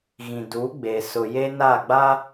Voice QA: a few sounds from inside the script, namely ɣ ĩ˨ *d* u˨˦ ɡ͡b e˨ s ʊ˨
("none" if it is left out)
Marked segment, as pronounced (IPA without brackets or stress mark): d